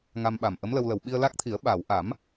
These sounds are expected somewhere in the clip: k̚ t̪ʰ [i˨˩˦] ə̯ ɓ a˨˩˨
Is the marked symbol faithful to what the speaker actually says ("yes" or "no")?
yes